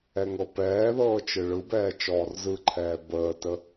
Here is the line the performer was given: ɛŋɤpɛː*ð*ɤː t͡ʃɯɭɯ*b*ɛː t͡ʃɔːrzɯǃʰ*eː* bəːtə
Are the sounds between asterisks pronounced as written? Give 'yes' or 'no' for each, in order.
yes, yes, no

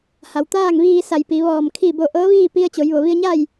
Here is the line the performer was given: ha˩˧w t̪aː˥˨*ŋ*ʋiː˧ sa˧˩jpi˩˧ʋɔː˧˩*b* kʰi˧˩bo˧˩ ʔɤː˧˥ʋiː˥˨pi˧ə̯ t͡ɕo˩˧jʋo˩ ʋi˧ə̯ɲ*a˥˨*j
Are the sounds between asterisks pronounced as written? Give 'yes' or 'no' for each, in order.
yes, no, yes

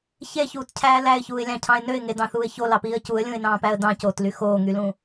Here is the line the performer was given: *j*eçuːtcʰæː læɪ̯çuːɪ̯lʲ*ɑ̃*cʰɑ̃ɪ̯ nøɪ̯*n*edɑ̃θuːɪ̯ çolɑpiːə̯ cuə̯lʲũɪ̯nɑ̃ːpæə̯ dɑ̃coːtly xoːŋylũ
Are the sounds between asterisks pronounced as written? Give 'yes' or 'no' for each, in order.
no, yes, no

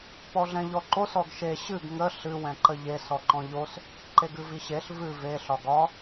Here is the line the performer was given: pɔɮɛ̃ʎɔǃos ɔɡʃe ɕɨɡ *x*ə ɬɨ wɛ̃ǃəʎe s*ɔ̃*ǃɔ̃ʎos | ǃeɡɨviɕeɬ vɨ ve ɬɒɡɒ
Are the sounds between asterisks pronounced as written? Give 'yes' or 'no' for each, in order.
no, no

